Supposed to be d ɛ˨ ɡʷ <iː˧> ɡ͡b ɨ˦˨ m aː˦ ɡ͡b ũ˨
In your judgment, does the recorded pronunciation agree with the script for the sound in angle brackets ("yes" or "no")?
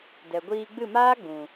yes